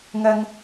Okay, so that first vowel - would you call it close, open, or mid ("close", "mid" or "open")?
open